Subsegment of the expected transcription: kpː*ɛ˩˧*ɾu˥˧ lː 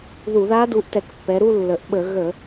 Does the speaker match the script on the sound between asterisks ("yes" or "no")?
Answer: yes